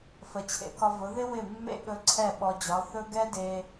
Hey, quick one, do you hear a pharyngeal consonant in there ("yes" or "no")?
no